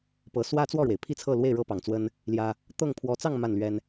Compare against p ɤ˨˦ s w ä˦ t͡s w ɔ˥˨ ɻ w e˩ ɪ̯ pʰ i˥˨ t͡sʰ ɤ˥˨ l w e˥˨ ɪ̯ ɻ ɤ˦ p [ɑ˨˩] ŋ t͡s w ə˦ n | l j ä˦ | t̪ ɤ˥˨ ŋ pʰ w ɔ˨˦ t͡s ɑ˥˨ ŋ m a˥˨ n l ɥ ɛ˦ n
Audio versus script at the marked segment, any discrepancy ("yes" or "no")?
no